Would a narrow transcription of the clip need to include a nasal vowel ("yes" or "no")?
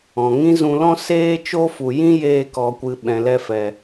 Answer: yes